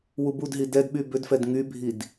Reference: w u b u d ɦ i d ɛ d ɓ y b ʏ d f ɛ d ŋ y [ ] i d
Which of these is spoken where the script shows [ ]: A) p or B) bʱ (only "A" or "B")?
B